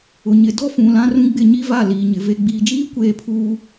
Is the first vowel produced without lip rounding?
no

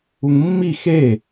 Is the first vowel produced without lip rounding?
no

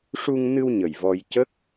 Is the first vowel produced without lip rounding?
no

